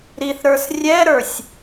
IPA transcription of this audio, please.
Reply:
ɾ i θ ɾ ə˞ s rʲ ɛ ɾ ə˞ sʲ

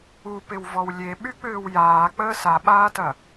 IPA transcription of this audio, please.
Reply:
u p ɪ w v ɔ w lʲ e ɓ y k͡p ʏː w j aː k͡p əː s a ɓ aː t ɐ

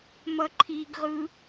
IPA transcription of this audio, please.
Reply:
m ʌ ǃʰ i ɡ ʁ ɯ

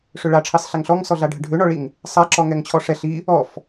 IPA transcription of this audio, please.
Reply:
ʂ ø ɭ a ʈ͡ʂʰ i sˤ ɬ ɛ ŋ ɬ ɔ ŋ s ɔ ɮ a ɖʱ ə ɖʱ ø ɳ ɔ ɭ i ŋ | sˤ a ǁ ɔ ŋ ɛ ŋ t͡ɕʰ ɔ ʂ ɛ ɬ i | ɔ f

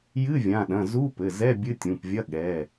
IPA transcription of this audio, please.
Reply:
j ɨ˧˥˧ vʲ ã˩˧˩ ɗ ɐ̃˩˧˩ z u˧˥˧ p ɘ˩˧˩ z ɛ˧˥˧ bʲ ɨ˧˥˧ tʲ ũ˩˧˩ p vʲ ɐ˧˥˧ ɠ ɛ˩˧˩

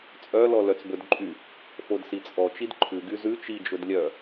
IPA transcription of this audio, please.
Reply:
t͡sʼ œ l ɔ l œ t͡s b ɵ d ǃʼ y | f o d s i t͡sʼ ɔ t͡ʃ i d ǃʰ ʉ ɡ y z ʉ t͡ʃ i d͡ʒ ɵ d lʲ œ

